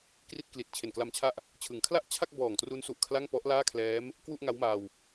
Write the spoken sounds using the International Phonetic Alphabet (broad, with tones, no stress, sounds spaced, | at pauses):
k r i˥˩ t̚ k l i˨˩ t̚ t͡ɕʰ e˨˩ n k l a˧ m t͡ɕʰ a˥˩ ʔ | t͡ɕʰ ɯ˨˩ ŋ kʰ l a˥˩ ʔ t͡ɕʰ a˥˩ k̚ b ɔː˨˩ ŋ t r u˦˥ n s u˨˩ ʔ kʰ l a˥˩ ŋ p ɔ˦˥ ʔ l aː˥˩ kʰ l ɛː˦˥ m | k w u˥˩ ʔ ŋ a˦˥ w m aː˧ w